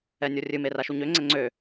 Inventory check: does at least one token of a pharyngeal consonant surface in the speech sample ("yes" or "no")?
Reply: no